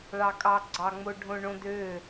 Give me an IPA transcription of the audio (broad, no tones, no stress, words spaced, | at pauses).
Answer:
ɭɑkʼɑ ɡ͡ǀɑŋ͡moɖʱõ ɳõdø